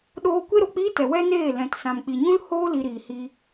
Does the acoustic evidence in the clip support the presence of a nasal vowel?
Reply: yes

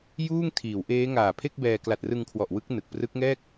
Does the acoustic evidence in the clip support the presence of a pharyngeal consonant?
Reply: no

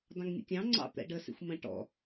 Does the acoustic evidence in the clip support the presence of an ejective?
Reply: no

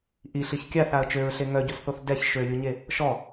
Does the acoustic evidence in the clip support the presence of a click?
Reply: no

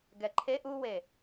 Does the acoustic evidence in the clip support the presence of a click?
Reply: yes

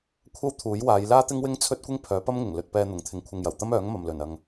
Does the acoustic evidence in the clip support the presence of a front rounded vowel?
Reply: yes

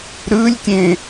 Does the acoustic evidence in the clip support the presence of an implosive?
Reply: no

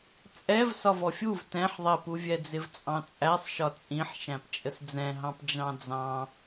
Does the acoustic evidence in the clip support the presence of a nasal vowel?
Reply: yes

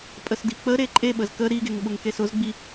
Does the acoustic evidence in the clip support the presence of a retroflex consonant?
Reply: no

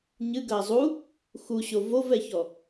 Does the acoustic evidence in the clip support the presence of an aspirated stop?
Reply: no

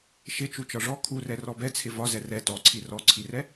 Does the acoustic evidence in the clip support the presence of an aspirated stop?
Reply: yes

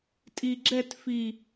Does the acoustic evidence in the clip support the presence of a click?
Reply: yes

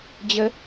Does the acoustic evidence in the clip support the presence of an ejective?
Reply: no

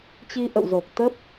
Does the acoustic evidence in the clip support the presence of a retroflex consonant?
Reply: no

